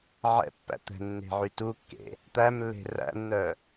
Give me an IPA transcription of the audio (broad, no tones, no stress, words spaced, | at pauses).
ʕɛ̰pːæ̰ t̪ɛ̤nːe̤ʕy tukːḛ | t̪æmlːe̤ ræ̰nːœ